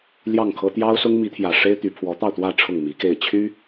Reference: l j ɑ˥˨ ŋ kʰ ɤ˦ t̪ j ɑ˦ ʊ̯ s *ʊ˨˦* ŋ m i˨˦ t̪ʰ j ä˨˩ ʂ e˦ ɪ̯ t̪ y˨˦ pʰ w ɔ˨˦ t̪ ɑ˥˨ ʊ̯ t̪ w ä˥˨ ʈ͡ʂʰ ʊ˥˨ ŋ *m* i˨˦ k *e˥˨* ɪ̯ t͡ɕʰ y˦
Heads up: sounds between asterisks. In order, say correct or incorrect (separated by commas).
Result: incorrect, correct, correct